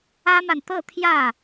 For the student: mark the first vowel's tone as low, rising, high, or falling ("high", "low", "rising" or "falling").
high